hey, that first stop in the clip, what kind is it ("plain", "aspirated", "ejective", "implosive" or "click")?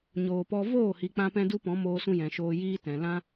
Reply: plain